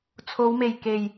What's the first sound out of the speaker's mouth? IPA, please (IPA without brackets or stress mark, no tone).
t͡sʰ